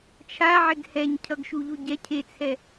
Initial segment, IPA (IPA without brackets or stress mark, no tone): t͡ʃʰ